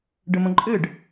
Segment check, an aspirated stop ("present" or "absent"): absent